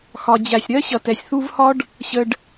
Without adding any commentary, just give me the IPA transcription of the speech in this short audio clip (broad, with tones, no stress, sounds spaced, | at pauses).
x ɒ˨ d͡ʑ æ˨ sʲ ɾ ɜ˦ ɕ ʌ˨ t ɛ˨ sʲ θ u˦ v h ɒ˦ ɖ | ɕ ə˨ ɖ